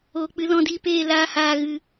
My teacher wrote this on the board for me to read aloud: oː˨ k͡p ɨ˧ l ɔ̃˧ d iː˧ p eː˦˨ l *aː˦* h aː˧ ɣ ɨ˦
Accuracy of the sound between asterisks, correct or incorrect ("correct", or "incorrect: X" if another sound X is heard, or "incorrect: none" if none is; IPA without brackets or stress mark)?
incorrect: aː˧